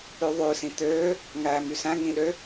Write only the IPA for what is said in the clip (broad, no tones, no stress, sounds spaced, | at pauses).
ʉ ðˤ ʉ s ĩ t̪ øː | ŋ æː m y s æ̃ ŋ ĩ ɗ ø